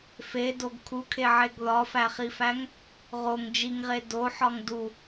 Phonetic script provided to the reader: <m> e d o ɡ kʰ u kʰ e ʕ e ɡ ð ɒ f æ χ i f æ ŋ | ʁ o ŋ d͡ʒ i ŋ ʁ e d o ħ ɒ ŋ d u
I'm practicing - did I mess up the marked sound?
yes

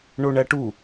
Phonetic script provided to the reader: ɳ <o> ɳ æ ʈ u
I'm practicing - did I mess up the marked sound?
no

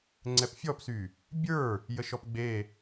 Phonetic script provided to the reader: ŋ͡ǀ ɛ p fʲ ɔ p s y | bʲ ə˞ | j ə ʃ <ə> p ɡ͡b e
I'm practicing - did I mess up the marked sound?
yes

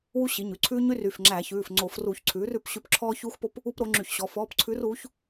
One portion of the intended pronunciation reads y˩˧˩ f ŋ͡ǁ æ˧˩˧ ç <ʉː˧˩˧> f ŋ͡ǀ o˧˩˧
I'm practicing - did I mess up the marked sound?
yes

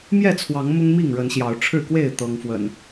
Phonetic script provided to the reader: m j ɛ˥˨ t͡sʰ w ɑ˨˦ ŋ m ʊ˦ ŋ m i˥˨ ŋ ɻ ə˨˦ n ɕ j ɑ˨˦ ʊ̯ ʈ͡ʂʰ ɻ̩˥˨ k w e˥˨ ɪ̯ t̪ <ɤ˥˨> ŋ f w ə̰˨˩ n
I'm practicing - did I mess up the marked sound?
yes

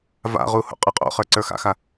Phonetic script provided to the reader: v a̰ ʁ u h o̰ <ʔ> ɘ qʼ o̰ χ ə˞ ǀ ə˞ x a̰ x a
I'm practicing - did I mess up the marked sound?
yes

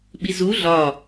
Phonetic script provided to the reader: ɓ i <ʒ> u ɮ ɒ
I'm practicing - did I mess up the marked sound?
yes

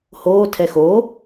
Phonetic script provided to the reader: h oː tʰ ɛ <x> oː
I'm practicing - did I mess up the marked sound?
no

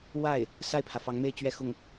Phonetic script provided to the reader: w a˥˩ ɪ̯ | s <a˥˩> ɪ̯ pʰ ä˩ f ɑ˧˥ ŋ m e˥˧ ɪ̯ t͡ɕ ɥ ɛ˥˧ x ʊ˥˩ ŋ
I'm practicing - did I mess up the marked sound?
no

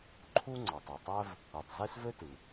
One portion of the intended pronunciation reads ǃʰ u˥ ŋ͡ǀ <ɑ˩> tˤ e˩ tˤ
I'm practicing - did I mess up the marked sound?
no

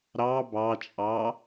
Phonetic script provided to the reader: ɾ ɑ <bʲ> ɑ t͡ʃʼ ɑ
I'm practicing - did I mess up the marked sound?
yes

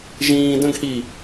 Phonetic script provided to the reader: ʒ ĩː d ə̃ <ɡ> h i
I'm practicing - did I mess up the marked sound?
no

